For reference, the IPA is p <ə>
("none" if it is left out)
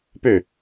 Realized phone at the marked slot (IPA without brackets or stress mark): ø